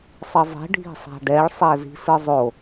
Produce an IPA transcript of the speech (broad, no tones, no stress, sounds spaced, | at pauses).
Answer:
sˤ ʌ zˤ i̤ ɖʱ i̤ sˤ a̤ ɖ ɛ ɭ sˤ ɛ z i̤ s ɯ zˤ o